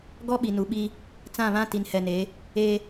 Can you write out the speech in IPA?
ɡ ɔ˦ ɓ i˨ n u˨ ɓ i˦ | t͡s ã˦˨ β ã˦ t i˨ n h ɛ˨ n e˨˦ | e˦

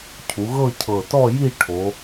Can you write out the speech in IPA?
cʰ u˩˧ ɣ ɤ˥˧ cʰ ɤ˨˩ t ɔ˥˧ j i˥˧ ʈʰ o˩˧

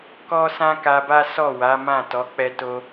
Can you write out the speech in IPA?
k ɔ˦ s ã˦ k a˧ b a˦ s ɔ˦˨ w a˨˦ m ã˦˨ t ɔ˨˦ k͡p ɛ˧ t o˧

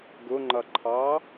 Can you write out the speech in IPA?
ɡ ʊ ŋ͡ǃ ʌ ǃʰ ɑ

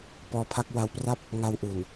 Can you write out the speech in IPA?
p ɔː˧ pʰ a˥˩ k̚ w a˧ w p r a˥˩ p̚ | ŋ a˧ w ʔ u˨˩ n

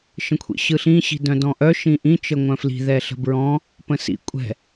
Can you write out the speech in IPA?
ʃ ə̃ kʷʰ ḭ ɕ ɯ ɬ ĩ ɕ i̤ d œ̃ d ɔ̃ ʔ œ ʃ ĩ ʔ ĩ t͡ʃ ə ŋʷ œ̃ f l i̤ ð ɛ ɬ ə̤ b ɹ ɔ̃ | p ə̃ s ḭ kʷʼ ɛ̤

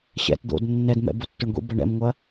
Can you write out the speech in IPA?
ɕ ɛ̰ t d̪ o̰ d nː ɛ d m ɛ̰ b o tː o ɳ ɡʷ ḭ b ɛ ɳ ɛ̰ m ŋʷ ɐ

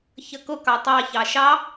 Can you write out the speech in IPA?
ç ə k ʊ k ɑ tˤ ɑ ç ɑ ʃ ɑ

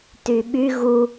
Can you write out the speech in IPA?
t y ɓ y ɣ u

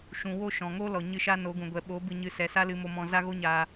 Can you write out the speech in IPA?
ʃ ũ˨ w o˦ ʃ ɔ̃˨ ŋ o˦ l ɔ˨ ɲ ɨ˧ ʃ a˦ n o˨˦ ɡ ũ˨ ɡʷ ɛ˨ ɓ o˨˦ b ɨ˧ ɲ ɨ˧ s ɛ˧ s a˦ l ɨ˧ m o˧ m ɔ̃˧ z a˦ ɣ o˦ ɲ aː˧

